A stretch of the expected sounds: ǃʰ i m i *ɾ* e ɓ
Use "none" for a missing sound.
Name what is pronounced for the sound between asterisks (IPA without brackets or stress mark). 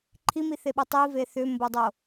θ